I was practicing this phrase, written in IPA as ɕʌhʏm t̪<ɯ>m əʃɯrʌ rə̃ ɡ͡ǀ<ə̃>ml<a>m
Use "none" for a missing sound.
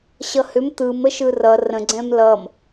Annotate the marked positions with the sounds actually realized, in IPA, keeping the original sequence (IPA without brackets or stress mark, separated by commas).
ɯ, ɛ̃, ʌ